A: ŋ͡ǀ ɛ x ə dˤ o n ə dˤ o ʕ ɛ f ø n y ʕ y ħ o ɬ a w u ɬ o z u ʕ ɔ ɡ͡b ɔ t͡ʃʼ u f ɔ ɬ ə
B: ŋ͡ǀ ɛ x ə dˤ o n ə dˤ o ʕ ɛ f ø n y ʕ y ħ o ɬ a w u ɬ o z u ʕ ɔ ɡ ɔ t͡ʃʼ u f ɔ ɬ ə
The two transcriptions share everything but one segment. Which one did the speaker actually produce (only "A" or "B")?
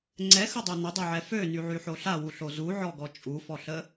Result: B